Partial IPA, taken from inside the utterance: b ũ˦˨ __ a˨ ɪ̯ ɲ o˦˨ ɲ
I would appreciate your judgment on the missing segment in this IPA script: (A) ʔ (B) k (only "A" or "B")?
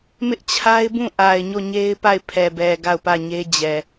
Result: A